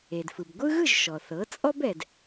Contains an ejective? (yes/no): yes